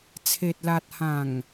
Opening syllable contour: low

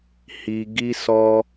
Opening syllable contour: low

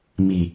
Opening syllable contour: low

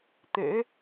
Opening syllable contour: rising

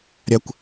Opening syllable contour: high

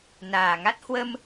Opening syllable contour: low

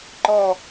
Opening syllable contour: falling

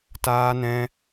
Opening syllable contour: high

